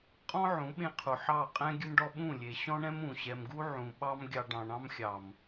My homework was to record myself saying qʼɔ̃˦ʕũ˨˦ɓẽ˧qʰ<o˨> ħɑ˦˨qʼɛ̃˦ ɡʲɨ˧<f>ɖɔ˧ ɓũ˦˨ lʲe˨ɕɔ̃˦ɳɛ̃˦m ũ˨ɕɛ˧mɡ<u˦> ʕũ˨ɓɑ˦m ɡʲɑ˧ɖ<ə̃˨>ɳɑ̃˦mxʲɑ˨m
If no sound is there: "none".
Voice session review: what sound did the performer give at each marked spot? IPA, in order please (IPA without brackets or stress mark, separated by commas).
u˨, m, u˦, ɑ̃˨